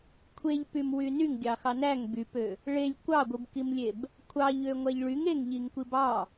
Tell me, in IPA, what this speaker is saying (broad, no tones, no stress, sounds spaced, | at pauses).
kʷʰ e ʎ p y m w y n y ŋ ɡʲ ɑ x ɑ n æ ŋ b y p ø | ɭ e lʲ kʷ ɑ ɡʷ ɯ b k i m lʲ e b | kʷʰ ɑ ʎ ø ŋʷ æ ʎ ɭ y ŋ e ŋ ʎ i ŋ kʷ i b ɑ